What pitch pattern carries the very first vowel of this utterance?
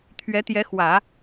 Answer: rising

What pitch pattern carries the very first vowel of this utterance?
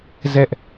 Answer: high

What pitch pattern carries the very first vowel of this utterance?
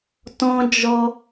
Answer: high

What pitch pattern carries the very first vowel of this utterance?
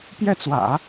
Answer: falling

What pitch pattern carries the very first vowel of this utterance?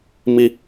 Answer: high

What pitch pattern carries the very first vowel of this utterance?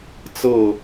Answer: falling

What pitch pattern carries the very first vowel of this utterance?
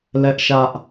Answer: high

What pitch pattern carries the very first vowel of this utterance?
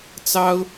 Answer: high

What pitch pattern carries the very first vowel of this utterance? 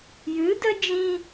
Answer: rising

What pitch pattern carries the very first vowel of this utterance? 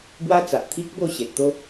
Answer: high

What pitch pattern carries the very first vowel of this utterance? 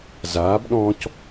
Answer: rising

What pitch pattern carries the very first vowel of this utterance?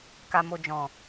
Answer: low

